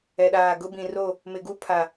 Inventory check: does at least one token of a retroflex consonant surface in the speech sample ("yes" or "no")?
no